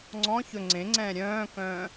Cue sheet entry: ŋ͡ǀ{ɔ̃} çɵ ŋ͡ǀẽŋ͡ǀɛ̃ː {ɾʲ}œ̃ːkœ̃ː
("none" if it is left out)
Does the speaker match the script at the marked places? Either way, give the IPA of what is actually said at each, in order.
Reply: ɔ̃, ɾʲ

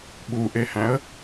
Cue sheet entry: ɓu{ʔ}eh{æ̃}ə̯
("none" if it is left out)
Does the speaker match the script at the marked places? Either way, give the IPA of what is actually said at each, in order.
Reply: ʔ, æ̃

